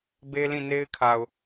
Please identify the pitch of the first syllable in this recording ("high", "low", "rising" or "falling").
high